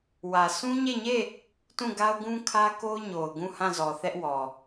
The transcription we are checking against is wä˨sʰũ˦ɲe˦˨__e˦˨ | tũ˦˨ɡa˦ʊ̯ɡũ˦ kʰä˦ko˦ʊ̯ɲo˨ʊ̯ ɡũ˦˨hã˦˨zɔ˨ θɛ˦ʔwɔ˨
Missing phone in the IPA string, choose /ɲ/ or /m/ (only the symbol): ɲ